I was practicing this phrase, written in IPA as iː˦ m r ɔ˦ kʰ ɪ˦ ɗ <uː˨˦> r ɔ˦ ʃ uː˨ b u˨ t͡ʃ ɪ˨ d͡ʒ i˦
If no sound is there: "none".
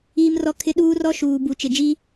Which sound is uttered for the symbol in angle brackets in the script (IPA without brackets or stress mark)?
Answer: uː˦